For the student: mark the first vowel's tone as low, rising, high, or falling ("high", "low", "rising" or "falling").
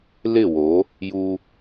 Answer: falling